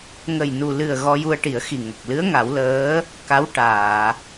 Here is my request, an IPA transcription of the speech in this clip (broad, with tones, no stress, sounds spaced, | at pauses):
ŋ ə˨˩ j n u˨˩ l ɨ˨˩ ə̯ ɣ ɔ˧ j u˧ ə̯ ʈ i˨˩˦ ə̯ x i˨˩ ŋ ə˨˩ k̚ l ɨ˧˥ ə̯ ŋ a˨˩˦ w l əː˧˥ | k a˧˥ w ʈ aː˨˩˨